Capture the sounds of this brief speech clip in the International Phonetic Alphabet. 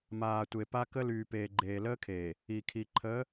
maː˨tʷe˨pa˦ kə˦lyː˨peː˨ ɡ͡ǃeː˨ləː˦kʰeː˨ | i˨ kʰi˨ǃʰəː˨˦

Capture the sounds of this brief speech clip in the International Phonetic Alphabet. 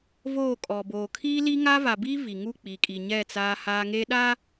voː˦˨kʼɔ˨ boː˨kʰiː˦ li˦ŋa˦va˨biː˦ vi˨ŋu˦˨k͡piː˨ kʼi˨ɲɛ˦˨ t͡saː˦haː˦ ŋeː˦ɗa˦

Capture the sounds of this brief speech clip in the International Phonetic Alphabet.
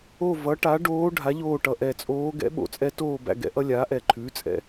o˦˨ vʌ˩˥ʈa˩˥ ɖoː˧˥ ɖʱa˩˥ʎoː˦˨ʈʌ˨˩ ʔɛ˨˩ t͡sʼoː˧˥ ɡɛ̰˧˥ ɓo̰˩˥t͡sʼɛ˧˥ toː˦˨bæ̰˦˨ɡɛ̰˧˥ ʔʌ˧˥lʲaː˩˥ʔɛ˨˩ǃʰʉː˩˥ t͡sʼɛ̰˨˩

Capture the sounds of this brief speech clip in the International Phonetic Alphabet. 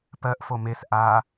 pɜʔfo mes ʔa

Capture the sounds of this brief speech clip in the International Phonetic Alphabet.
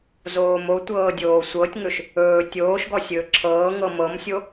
zoːmotʷɤː dʲoːsʷɤtʲŋɵʃ | ɵː tʲoːʃɡɔ sʲɵːǁʰɤːŋɤ mɤmsʲo

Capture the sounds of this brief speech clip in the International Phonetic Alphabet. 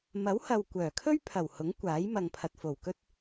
mɐ˨˥whɐ˨w kʷœː˨˩kʰɵ˥ɥ pʰɐ˨˩whʊ˨˥ŋ kʷaː˨˥jmɐ˨ŋpʰɐ˨t̚fo˨˩w kɵ˥t̚

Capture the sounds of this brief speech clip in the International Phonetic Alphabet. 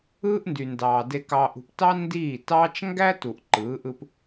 ɯː˦ʔndy˨ndɑː˨ de˨kɑː˨ʔṳ˨p tɑ˦ ndiː˦˨tɑː˦t͡ʃ ŋɡæ˦tu˨ʔ ǃɯː˨˦ʔɯ˦p

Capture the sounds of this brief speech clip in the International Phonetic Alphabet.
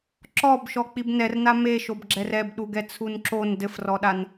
ǁɔbʃɔ k͡pibnɛrna meʃobɡ͡ǁɛr ɛbɗuɡɛ t͡sʰunǁon dɘfrɔɗan

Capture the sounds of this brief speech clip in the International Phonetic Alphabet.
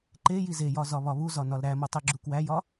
ǃe jizejɒ zɒβɒβuzɒ nɒlɾæmo tˤiɡ͡ǁukwæjɒ

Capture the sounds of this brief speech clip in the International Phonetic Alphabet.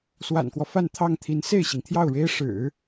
swa̰˨˩nkwɔ˦ fa˥˧nt̪ʰɑ˥˩ŋt̪ʰi˧˥n se˥˩ɪ̯ɕi˩ŋt̪ʰjɑ˥˩ʊ̯ ɻe˥ɪ̯ ʂɻ̩˨˩˦

